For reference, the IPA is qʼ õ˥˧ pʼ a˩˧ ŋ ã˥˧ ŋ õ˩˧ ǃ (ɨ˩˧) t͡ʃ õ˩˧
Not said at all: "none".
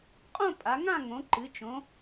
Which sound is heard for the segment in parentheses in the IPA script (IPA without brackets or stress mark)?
ɨ˩˧